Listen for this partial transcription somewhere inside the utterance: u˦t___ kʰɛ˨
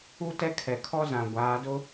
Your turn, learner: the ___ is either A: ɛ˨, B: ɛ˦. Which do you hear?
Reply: B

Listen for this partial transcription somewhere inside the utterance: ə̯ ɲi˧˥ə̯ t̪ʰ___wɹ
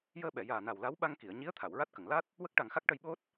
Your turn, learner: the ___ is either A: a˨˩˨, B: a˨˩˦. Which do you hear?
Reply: A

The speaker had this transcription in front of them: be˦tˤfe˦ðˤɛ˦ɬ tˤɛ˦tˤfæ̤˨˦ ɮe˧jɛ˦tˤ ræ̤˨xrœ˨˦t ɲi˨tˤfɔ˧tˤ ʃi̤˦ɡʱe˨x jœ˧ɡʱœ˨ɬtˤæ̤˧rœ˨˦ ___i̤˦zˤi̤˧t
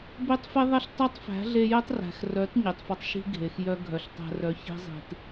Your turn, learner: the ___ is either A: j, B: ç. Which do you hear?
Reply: B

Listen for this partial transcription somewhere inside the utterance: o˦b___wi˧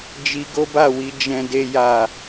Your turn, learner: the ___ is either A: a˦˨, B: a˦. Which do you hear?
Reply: A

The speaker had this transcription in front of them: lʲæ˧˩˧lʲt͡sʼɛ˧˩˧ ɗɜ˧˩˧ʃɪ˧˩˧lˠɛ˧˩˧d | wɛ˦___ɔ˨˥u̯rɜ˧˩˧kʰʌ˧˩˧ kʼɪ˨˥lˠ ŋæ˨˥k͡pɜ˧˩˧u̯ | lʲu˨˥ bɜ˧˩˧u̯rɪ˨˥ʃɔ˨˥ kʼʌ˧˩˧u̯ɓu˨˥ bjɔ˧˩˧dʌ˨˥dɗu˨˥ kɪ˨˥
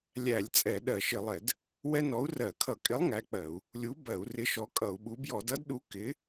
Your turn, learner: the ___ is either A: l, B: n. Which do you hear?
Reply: B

